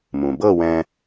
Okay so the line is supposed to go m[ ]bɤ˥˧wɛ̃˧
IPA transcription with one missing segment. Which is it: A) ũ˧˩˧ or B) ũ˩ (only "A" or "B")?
B